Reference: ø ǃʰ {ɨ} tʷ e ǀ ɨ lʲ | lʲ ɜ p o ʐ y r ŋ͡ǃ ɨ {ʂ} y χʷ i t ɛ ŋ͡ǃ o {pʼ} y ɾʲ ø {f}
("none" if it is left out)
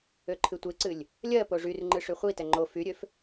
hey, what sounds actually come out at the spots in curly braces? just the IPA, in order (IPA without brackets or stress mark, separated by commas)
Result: ɨ, ʂ, f, f